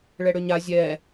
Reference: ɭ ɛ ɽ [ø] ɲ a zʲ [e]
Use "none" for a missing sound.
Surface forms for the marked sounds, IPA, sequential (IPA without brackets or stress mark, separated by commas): ø, ɛ